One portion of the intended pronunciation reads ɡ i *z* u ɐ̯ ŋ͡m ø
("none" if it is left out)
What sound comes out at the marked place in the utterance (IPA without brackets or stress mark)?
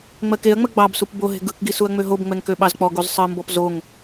s